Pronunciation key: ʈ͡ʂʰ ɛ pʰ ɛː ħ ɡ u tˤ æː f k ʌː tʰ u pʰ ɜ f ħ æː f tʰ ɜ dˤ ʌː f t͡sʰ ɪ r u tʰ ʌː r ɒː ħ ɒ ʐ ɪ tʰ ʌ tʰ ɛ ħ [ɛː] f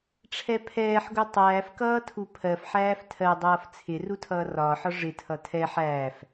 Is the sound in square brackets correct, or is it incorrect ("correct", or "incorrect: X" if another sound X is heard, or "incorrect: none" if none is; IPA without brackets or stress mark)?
incorrect: æː